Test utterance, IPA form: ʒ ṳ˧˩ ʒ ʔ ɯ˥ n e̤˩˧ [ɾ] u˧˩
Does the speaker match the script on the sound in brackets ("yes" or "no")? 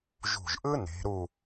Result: yes